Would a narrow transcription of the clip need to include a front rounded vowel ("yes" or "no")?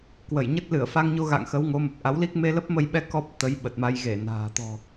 no